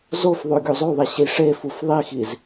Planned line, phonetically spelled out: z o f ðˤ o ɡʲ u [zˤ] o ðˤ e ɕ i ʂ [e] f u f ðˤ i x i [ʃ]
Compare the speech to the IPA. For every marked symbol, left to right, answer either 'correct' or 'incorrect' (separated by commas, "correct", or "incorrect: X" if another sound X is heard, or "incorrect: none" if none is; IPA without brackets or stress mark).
correct, correct, incorrect: z